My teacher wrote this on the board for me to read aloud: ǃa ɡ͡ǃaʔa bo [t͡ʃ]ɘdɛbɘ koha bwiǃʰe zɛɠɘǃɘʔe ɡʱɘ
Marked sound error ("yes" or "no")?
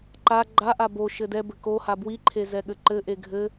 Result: yes